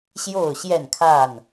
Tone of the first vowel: falling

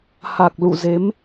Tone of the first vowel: low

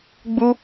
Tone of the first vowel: high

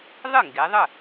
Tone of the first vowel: falling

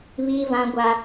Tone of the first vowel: high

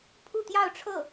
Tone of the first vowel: falling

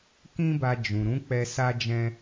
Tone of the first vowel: high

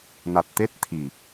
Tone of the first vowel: low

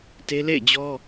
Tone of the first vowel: high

